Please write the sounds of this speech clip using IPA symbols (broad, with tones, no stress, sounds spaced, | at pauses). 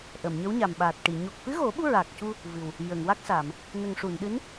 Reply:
ʔ ə˨˩˨ m ɲ ə˧˥ w ɲ a˨˩ m ɓ aː˨˩ t̚ ʈ i˨˩˨ ɲ o˨˩ k̚ f ɨ˧˥ ɣ o˨˩˦ ɓ u˧ ɹ a˨˩ k̚ c u˧ | v ɨ˨˩ w | j ə˨˩˨ ŋ w a˦˥ k̚ s a˨˩˨ m | n ə˨˩ ŋ ʂ u˨˩˨ n ɗ ɨ˧˥ n